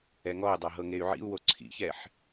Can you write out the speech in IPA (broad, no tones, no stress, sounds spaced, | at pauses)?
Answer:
ɛ ŋ ɔ u̯ dˤ a ɦ ɤ ŋ e y̯ ʕ ḭ u̯ w o ǀʰ ḭ ç ɛ ħ